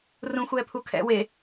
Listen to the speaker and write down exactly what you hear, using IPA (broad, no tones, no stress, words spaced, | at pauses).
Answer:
rũxʷɛːpʰu kʰɛ̰ we